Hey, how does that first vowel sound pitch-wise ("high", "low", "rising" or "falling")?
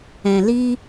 low